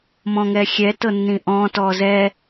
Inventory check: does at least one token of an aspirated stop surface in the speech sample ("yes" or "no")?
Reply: no